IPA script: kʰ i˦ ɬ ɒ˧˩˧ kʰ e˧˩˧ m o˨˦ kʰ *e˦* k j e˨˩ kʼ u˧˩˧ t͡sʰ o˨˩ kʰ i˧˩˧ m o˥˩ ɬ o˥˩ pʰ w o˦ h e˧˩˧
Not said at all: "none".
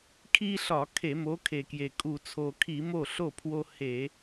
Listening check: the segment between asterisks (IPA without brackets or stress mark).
e˨˩